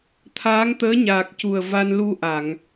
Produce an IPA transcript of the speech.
t̪ʰ aː˧˥ ŋ t̪ əː˧˥ ɲ aː˨˩ k̚ c u˨˩ ə̯ v a˧ n l u˧ ʔ a˨˩˨ ŋ

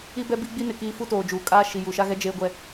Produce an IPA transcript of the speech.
i˦ b ɛ˦ b i˦ ɡ͡b i˦ n ɪ˨ k iː˦ f u˦ t oː˨ d͡ʒ uː˨ kʼ aː˦ ʃ i˨ j u˨ ʃ a˦ ɣ ɛ˦ d͡ʒ eː˦ ɡʷ ɛ˦

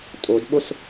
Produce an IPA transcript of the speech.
tʼ o d ɓ o s

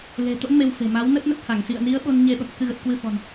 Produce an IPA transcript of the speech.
l e̤˨˩ t̪ o̰˧˥ n m e˧ w f e̤˨˩ m a˨˦ w n ə˦˥ t̚ n ə˦˥ t̚ h a˧˩ ŋ s ḭ˧˨ ə̯ n i˨˦ ə̯ ɓ o˧ n ɲ e˧ ɓ ə̰˧˨ m k ɨ˧ ɣ ə˨˩ t̚ k w ɨ˧ f ɔ̤˨˩ n

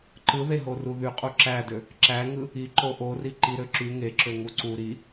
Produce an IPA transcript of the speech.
ǃ ɯ ð e ɦ o r u ð y qʼ u ǁ æ d ø | ǁ æ ŋ ɯ | i ǃ o ʔ o r i ǃ i ɾ ø ǁ y ŋ e ǁ ø ŋ u ǀ u ɾ i

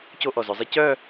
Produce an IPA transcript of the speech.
c o˥˧ ʔ ɔ˧˩ z œ˧ zˤ ɛ˥ c œ˥˧

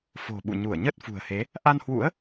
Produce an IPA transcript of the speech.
f o̤˨˩ ɓ ṵ˧˨ ɲ u˧˩ ə̯ ɲ ə˦˥ t̚ f ṳ˨˩ ə̯ h e˨˦ | ʔ a˧ n h w ṵ˧˥ ə̯

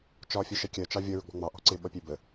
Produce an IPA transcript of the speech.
t͡ʃ ɒ fʲ ə ʃ ɛ kʲ ɜ t͡ʃ ɑ vʲ ʌ ɹ ʊ ɡ͡b ɔ̤ ŋ͡m ɑ ʔ ɔ̤ ǀ ɪ ɓ ʌ pʲ ɛ b ə

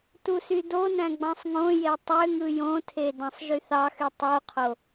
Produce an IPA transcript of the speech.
t u s y d o n æ̃ ɡ͡b ɑ̃ sˤ ŋ õ j e tˤ ø ŋ ɯ j õ tʰ e d ɑ̃ sˤ ʒ y θ ɑ x y tˤ u qʰ o

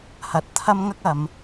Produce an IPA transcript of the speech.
h ɐ˨˥ t̚ t̪ʰ ɐ˥ m ŋ ɐ˥ k̚ ɐ˨˧ m

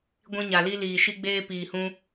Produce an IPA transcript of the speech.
ɡʷ ĩ˧ ɲ a˨ l i˧ l iː˨ ʃ i˧ ɡ͡b eː˧ p iː˨ h ũ˧

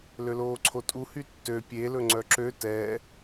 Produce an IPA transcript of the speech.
l ø l oː ǀʰ o tʼ u h y tː ø pʲ e l ɵ ŋ͡ǀ œ ǁ ø t ɛː

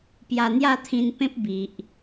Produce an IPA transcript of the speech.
p j a˧ n̪ j a˥˧ t̪ʰ ĩ˧ n p ẽ˦ p̚ b i˨ ʔ

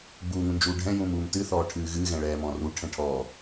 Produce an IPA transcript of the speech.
ɡ͡b uː ŋ ũ n d͡ʒ uː ɖʱ ɛ̃ j ũː m uː m t ɨ θ ɔː ʈʰ ɨː ɣ ɨː ɣ ɛ̃ ɭ ɛː m ɔ̃ r u ʈʰ ɛ̃ ʈʰ ɔ

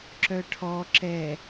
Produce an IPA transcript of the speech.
ǁ œ ʈʰ ɔ ǁ ɛ

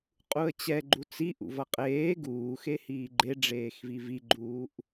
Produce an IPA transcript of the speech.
qʼ u ə̯ t͡ɕ ɛ ɡ͡ǃ u t͡s i ʔ ṵ v ʌ qʼ eː ɡ uː x e h iː ɡ͡ǃ e ɖ͡ʐ eː x v i v i ɡ͡ǃ uː ʔ

